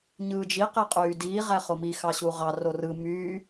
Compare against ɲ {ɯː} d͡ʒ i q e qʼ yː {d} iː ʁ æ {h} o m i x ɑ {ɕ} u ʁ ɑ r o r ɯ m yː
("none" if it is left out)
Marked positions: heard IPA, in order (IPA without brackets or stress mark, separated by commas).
ɯː, d, χ, ɕ